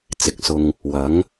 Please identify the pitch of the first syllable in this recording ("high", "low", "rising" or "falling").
low